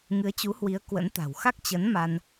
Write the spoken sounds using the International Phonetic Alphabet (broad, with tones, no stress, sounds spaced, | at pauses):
ŋ ɨ˨˦ ə̯ t͡ɕ u˨˦ h w i˨˦ ə̯ k w ə̰˧˥ n t̪ a̤˨˩ w x a˦˥ k̚ t͡ɕ ə˨˦ n m a˧ n